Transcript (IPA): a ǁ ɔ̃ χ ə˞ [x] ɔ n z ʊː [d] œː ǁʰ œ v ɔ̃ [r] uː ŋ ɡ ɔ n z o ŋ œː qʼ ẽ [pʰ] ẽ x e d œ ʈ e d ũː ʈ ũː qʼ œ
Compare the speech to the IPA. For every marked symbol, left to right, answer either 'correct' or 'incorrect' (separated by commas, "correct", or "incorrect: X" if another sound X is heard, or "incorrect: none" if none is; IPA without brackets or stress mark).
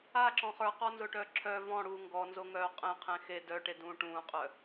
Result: incorrect: q, incorrect: ʈ, incorrect: ɽ, incorrect: qʰ